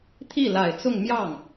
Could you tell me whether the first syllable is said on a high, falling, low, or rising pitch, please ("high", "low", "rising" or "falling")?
falling